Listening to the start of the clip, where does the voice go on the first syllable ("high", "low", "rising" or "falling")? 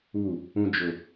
falling